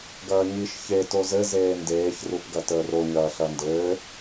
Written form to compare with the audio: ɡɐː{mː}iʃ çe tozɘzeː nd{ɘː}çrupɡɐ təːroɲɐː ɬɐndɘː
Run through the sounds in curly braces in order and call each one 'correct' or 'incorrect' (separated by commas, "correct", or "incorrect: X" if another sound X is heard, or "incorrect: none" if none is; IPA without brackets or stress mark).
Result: incorrect: ɲ, incorrect: eː